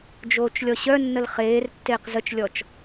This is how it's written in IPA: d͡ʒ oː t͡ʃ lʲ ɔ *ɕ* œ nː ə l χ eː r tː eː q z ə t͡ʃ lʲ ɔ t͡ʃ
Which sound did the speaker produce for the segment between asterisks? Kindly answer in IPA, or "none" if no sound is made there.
ɕ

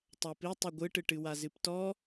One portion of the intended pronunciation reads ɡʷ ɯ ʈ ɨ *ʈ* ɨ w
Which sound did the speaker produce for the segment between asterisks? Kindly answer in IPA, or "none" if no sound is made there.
ʈ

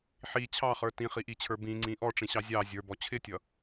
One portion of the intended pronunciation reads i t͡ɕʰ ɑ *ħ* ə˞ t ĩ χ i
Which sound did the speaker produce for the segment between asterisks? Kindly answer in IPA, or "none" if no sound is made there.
χ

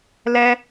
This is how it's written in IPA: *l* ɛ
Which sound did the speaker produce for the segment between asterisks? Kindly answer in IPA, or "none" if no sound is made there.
l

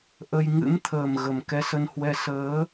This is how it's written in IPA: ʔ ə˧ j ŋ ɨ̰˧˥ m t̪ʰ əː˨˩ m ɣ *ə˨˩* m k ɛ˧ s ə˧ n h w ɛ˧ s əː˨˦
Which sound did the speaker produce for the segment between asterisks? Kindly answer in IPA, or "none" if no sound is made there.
ə˨˩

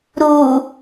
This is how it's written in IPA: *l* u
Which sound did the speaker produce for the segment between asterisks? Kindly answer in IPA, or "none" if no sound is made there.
ɾ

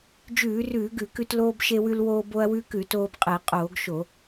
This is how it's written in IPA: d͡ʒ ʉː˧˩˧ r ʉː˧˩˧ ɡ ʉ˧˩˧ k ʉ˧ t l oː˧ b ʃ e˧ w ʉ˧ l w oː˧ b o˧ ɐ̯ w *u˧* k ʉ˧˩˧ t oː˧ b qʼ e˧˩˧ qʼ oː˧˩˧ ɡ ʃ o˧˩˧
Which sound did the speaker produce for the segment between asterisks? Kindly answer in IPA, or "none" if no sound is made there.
ʉ˧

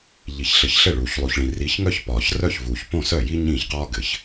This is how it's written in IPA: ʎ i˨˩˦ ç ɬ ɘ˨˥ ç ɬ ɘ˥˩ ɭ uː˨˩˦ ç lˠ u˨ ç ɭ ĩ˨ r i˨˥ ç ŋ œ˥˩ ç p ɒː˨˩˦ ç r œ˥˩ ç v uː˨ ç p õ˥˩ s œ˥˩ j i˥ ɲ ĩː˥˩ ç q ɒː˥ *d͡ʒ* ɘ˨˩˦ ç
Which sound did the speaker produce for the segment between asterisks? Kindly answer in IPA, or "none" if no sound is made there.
ɡ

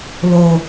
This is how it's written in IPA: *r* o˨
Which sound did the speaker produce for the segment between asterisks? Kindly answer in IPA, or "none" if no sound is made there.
l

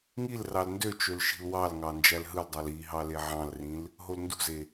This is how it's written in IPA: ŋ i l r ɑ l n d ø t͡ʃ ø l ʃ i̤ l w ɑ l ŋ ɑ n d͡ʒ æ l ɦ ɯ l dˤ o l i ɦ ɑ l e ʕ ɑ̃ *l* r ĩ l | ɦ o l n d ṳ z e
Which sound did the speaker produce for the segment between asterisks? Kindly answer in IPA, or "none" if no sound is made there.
l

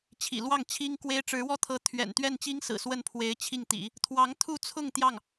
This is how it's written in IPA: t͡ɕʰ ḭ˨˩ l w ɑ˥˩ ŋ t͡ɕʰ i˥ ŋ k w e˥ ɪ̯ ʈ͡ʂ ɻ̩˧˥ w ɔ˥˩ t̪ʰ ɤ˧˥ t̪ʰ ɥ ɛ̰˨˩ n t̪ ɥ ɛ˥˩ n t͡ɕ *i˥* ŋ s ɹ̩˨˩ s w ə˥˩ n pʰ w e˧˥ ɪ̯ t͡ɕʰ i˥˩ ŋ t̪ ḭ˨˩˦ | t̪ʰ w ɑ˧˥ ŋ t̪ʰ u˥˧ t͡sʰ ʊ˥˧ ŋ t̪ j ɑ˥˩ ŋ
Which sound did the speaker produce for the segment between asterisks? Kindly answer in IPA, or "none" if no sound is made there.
i˥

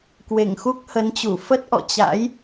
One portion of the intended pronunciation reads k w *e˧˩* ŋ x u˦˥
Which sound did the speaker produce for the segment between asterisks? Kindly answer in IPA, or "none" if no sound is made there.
e˧˩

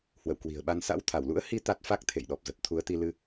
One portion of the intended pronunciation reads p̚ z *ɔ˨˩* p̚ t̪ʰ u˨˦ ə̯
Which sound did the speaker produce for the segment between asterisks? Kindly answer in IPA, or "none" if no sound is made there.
ə˨˩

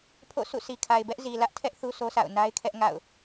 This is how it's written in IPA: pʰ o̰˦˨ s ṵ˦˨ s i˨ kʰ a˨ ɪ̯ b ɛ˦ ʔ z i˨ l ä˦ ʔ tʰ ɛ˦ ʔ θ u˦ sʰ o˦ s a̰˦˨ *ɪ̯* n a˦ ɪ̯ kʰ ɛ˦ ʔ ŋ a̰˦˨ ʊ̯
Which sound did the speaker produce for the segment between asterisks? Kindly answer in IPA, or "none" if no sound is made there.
ʊ̯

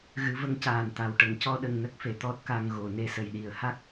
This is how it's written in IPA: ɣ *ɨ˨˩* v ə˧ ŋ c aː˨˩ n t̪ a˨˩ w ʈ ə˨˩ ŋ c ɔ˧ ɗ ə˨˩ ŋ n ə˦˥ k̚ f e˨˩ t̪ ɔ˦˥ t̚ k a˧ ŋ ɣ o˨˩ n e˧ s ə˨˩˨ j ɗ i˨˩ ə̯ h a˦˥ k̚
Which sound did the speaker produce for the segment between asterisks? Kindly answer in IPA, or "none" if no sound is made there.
ɨ˨˩˦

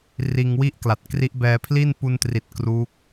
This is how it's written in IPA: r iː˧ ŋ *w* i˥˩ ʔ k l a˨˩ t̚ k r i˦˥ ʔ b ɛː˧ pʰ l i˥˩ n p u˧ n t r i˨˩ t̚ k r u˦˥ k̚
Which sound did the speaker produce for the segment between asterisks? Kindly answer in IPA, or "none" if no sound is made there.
w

